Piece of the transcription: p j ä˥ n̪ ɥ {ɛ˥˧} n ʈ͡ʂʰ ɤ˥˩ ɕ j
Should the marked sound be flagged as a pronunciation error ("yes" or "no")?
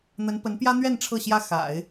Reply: no